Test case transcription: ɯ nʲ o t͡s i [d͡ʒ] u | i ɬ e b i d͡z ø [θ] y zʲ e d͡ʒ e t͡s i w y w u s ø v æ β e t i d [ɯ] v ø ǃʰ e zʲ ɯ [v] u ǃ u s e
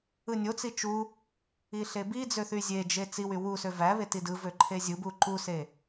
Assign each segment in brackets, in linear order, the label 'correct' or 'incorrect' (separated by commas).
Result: incorrect, correct, correct, incorrect